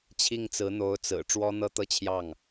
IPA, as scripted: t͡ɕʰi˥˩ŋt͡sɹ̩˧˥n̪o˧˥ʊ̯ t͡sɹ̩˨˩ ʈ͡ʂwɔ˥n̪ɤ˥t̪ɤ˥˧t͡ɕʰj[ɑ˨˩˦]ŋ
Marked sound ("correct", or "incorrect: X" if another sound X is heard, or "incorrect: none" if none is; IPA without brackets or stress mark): incorrect: ɑ˥˩